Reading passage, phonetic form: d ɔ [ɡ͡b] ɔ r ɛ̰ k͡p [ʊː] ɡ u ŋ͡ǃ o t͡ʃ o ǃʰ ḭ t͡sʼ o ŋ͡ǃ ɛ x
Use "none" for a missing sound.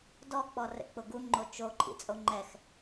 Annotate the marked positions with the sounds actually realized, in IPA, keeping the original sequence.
k͡p, ʊ

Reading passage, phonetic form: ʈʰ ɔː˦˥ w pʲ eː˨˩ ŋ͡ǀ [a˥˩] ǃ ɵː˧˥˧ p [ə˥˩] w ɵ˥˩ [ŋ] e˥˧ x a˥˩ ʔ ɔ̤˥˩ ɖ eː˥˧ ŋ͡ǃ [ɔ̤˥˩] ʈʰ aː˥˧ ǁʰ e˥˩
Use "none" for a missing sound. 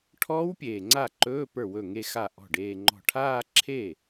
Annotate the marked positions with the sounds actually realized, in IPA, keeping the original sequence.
a˥˩, ə˞˥˩, ŋ, ɔ̤˥˩

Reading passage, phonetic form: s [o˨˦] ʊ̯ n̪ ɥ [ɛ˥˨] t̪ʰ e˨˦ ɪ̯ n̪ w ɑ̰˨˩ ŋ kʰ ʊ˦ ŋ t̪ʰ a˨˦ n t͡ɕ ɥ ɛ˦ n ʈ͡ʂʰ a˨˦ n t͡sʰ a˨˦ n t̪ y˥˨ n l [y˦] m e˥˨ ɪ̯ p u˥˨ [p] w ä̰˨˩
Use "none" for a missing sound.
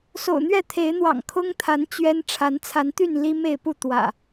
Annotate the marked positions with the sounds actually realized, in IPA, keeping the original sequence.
o̰˨˩, ɛ˥˨, i˦, t̪

